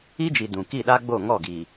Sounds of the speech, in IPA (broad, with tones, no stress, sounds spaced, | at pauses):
i˦ d͡ʒ i˨ d ũ˨ k i˦˨ ɗ a˦ ɡ͡b o˦˨ ŋ ɔ˦˨ ɡ i˨